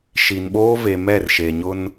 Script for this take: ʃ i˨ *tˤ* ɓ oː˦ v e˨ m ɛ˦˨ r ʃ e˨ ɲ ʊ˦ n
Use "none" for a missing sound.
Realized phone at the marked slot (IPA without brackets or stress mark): n